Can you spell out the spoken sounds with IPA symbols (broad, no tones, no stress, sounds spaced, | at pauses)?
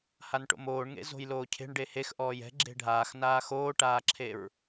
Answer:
h a n ʈ o̰ m oː ɳ ŋ ḛ z o̤ j l oː cʰ e̤ ɳ ɖ e h e x ʔ ɔː j ɛ̤ ɡ͡ǁ e̤ ɖʱ aː x n aː x oː ʈ aː ǁʰ e ɹ